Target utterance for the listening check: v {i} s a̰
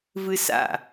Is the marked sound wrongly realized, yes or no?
yes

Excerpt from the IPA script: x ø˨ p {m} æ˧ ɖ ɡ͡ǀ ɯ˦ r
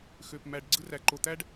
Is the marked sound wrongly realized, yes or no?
no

